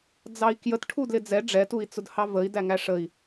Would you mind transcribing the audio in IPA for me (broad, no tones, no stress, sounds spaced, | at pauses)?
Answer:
d͡z ɑ i̯ k j ə t ʈʰ u d l ɪ d͡z ɛ ɖ͡ʐ ɛ t u i̯ t͡s ʊ d h ɑ v ə i̯ d æ ŋ æ ʂ ə i̯